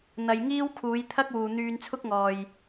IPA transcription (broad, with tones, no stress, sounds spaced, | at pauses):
n̪ ɐ˨ j ŋ iː˥ w kʰ uː˨˧ j t̪ʰ ɐ˥ k̚ w uː˨ n̪ yː˧ n t͡sʰ ʊ˥ k̚ ŋ ɔː˨ j